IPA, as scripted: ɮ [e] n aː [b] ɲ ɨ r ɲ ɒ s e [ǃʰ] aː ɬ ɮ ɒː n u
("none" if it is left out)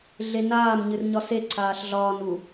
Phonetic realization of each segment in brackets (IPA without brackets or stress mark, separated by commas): e, m, ǀʰ